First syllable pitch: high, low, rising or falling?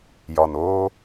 low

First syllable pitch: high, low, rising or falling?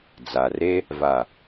low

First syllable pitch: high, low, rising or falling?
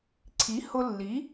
rising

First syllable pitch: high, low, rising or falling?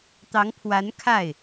rising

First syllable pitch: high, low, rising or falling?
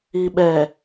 low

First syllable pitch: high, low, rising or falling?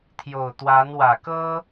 low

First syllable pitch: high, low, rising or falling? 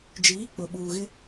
rising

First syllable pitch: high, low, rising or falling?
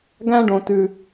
high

